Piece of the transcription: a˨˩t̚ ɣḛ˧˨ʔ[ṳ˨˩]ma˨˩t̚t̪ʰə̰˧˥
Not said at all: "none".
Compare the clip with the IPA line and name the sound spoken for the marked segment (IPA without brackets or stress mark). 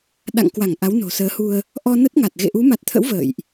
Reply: u˨˦